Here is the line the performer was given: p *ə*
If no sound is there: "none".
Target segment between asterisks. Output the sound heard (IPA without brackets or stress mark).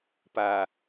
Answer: a